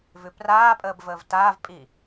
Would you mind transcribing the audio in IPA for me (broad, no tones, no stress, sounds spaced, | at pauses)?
v ʉ p r aː pʼ əː b v əː v t aː v pʼ i